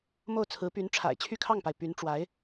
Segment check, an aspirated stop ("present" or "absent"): present